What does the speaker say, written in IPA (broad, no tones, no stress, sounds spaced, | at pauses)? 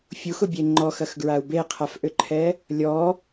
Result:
fʲ u x ʊ bʲ e ŋ͡ǃ ɔ x ɐ x ɡ ɹ a u̯ b e qʰ a f ʔ ʏ ǃʰ ɛ | lʲ ɔ